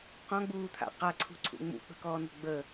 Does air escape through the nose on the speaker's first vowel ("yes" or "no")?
yes